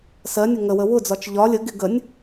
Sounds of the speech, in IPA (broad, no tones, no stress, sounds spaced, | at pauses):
s ɜ nʲ ʊ ŋ ə w ə w ʊ d͡z ɒ t͡ʃ ʎ ɒ lʲ ə ɡ ɪ ɡ ə nʲ